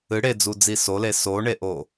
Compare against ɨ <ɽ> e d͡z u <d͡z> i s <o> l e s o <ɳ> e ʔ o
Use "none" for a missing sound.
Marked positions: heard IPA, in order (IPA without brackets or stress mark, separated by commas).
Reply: ɽ, d͡z, o, ɳ